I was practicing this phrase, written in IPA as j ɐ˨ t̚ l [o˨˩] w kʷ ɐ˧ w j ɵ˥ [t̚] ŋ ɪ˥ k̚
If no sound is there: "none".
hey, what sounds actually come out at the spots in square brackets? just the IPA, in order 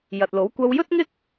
o˨˥, t̚

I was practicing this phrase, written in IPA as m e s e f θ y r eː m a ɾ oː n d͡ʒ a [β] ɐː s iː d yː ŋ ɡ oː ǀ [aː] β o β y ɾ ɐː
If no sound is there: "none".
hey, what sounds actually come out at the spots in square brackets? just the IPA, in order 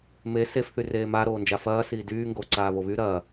f, aː

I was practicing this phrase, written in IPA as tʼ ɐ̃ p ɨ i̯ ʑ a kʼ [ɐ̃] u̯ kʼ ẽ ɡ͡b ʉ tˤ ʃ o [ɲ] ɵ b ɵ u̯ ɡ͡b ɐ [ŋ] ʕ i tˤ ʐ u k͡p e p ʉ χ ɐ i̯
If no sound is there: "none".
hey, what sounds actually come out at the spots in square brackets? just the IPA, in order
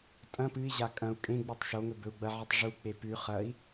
ɐ̃, ŋ, none

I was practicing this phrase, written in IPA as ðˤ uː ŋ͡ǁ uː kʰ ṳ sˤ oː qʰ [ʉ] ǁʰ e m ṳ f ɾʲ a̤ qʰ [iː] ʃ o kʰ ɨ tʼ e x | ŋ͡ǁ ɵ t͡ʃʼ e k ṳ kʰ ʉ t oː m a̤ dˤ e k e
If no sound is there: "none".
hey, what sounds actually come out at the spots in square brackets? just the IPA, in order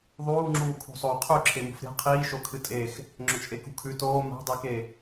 ʉ, iː

